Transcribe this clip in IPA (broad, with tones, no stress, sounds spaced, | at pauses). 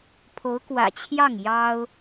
pʰ o˧˥ ʊ̯ k w ä̰˨˩ t͡ɕʰ j ɑ˥˩ ŋ j ɑ˥ ʊ̯